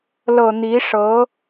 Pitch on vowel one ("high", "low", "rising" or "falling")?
low